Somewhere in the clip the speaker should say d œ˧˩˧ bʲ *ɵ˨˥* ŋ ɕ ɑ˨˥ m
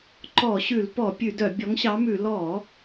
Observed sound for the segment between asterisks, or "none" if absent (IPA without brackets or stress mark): ɔ˨˥